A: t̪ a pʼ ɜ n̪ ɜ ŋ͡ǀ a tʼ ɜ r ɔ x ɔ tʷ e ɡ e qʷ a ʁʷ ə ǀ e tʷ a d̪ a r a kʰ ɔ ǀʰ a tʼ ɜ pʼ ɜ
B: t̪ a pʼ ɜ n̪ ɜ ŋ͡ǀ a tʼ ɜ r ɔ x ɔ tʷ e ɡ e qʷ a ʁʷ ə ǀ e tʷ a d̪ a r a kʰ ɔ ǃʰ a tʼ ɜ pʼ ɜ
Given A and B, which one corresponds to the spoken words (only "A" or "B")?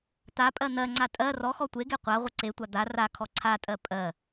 A